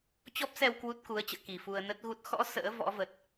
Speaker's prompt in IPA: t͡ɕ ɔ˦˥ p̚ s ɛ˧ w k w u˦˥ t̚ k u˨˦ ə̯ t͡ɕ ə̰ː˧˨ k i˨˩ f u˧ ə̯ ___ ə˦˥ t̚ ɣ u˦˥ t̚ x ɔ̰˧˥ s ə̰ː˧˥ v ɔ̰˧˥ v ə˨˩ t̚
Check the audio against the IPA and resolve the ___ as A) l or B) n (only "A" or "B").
B